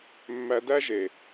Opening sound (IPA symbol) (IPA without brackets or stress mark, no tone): mː